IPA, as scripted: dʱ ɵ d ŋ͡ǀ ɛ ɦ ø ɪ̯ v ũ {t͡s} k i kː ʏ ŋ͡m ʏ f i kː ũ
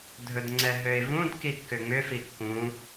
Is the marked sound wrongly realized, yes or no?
yes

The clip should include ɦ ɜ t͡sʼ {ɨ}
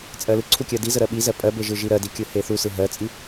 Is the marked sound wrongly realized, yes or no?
yes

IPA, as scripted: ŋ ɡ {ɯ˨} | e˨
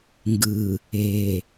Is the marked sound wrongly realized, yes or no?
no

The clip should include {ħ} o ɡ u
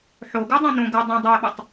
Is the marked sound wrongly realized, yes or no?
no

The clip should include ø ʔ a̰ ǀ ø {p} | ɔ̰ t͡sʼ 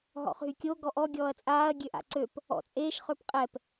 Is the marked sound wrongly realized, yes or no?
no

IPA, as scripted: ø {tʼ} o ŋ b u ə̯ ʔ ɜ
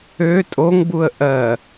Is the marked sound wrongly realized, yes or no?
no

